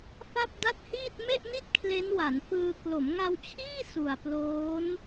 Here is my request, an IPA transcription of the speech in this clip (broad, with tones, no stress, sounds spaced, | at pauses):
f a˥˩ p̚ d a˥˩ t̚ h iː˥˩ t̚ m e˥˩ ʔ n i˥˩ t̚ kʰ l e˦˥ n w a˩˦ n f ɯː˧ k l o˩˦ m ŋ a˧ w t͡ɕʰ iː˥˩ s u˨˩ a̯ p l oː˦˥ n